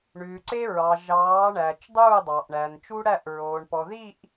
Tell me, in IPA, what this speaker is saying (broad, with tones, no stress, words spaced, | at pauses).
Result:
ɳʉː˨ǀe˦ɹɑ˨ ʒɑː˨˦ ɳæː˨t͡ʃdˤuː˦˨dˤɑ˨ʔ ɳæ˨nt͡ʃu˦ɽæ˦˨ʔɹoː˨ɳ pɔ˨ði˦˨ʔ